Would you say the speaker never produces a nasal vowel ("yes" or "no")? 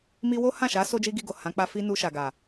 no